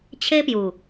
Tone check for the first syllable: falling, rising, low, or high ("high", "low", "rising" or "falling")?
high